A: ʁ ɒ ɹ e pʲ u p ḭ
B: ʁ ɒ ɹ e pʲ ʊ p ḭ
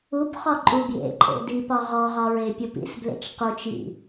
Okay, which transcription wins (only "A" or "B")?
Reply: A